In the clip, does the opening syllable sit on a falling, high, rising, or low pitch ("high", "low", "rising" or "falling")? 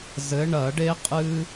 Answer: rising